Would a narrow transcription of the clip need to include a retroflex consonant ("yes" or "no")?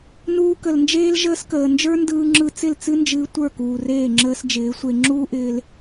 no